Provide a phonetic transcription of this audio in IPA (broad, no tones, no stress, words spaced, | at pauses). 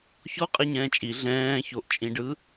çɔ qʼɛɲɛ̃ːt͡ʃʼi ɮɛ̃ː çoʔt͡ʃʼĩɖɯ